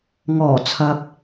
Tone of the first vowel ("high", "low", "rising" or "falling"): low